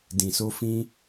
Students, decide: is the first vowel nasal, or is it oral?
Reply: nasal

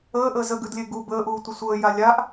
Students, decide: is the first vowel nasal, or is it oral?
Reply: oral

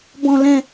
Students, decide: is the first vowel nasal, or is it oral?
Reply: nasal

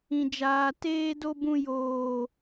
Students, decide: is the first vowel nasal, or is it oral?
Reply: nasal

